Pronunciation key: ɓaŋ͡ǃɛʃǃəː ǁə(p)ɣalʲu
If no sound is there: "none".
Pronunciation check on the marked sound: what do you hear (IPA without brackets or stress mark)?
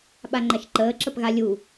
p